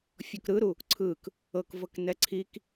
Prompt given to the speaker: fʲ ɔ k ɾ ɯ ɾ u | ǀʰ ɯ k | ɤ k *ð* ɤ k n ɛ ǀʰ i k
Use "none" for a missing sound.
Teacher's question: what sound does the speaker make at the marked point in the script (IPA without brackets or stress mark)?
v